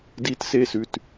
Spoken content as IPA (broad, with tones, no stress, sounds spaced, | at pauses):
d i˦˥ t s e˥˧ s ʉ˧ t